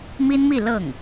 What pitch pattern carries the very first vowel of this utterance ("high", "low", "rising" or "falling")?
high